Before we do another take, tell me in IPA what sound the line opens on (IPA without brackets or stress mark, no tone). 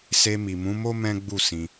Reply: s